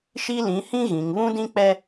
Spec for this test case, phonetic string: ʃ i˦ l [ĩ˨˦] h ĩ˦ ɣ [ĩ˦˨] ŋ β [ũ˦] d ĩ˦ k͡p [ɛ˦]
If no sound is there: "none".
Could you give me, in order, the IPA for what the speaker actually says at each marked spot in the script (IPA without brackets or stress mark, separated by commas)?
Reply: ĩ˨˦, ĩ˨, ũ˦, ɛ˦